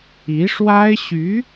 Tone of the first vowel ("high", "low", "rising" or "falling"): rising